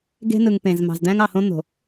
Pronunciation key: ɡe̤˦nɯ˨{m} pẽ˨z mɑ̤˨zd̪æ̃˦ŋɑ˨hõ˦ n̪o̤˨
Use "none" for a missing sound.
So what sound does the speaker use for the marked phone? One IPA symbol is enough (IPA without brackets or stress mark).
ŋ